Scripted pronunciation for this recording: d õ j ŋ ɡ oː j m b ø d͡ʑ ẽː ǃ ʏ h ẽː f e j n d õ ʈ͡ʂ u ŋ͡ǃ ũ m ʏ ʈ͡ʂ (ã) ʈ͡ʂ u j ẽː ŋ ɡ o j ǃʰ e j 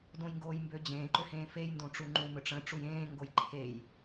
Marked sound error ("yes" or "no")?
yes